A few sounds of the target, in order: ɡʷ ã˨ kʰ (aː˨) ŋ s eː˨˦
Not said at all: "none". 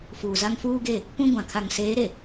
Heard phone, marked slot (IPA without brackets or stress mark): a˨